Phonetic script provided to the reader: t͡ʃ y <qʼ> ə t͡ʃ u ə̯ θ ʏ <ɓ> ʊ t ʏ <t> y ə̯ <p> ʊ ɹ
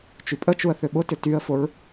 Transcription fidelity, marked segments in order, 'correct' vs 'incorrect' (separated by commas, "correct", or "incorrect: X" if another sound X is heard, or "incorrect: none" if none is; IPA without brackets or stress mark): incorrect: pʼ, correct, correct, incorrect: f